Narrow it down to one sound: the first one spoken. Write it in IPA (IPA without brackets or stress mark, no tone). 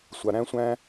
sʷ